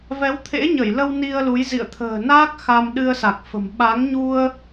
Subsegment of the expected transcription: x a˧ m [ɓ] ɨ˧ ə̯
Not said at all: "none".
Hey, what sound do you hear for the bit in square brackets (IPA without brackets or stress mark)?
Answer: ɗ